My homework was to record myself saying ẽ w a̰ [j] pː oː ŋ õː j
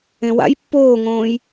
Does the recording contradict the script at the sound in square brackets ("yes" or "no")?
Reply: no